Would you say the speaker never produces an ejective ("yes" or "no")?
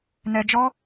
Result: yes